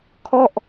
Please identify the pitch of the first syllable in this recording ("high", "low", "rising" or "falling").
falling